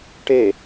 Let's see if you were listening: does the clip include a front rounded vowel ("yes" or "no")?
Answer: no